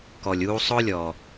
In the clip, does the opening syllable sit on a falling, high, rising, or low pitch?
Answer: low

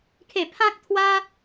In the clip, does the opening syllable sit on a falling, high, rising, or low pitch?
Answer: falling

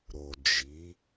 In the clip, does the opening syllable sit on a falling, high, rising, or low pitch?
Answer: low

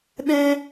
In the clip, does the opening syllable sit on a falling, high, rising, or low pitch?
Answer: high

